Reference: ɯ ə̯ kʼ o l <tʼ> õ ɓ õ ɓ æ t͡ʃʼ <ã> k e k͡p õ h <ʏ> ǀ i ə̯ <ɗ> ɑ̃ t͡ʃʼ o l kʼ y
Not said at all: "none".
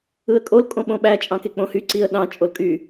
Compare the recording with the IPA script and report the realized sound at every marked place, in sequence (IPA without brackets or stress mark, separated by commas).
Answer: kʼ, ɑ̃, y, ɗ